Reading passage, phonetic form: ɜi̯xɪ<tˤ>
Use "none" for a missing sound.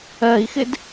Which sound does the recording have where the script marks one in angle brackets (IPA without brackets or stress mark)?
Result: d